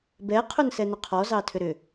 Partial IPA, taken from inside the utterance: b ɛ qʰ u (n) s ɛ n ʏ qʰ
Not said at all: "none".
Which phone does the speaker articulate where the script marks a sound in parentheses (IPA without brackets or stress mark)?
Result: n